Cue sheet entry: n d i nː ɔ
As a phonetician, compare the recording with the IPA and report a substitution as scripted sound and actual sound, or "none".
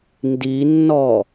none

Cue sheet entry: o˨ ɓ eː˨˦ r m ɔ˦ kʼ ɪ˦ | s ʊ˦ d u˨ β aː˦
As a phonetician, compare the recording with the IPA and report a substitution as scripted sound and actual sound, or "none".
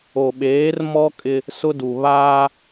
none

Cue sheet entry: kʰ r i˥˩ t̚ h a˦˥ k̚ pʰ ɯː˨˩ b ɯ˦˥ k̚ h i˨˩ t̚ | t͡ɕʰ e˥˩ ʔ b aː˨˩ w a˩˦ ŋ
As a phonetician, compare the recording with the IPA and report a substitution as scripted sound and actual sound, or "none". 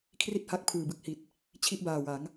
e˥˩ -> i˥˩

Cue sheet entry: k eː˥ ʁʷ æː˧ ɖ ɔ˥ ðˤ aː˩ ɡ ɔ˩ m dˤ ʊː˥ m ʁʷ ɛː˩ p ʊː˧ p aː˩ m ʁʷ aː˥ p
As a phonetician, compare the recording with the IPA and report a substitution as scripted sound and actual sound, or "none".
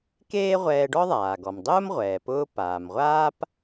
æː˧ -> ɛː˧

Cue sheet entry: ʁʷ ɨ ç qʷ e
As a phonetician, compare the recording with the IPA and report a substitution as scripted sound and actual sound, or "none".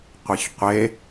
ʁʷ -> qʷ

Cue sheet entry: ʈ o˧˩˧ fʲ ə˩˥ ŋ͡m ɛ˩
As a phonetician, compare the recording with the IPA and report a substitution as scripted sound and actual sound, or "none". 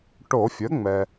none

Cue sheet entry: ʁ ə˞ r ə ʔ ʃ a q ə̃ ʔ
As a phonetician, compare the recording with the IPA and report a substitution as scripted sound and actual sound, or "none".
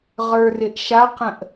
ə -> ɪ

